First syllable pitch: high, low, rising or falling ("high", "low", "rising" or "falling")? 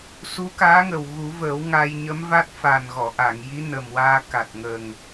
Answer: rising